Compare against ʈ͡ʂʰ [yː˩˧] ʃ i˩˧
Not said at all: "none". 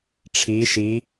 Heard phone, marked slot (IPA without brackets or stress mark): iː˩˧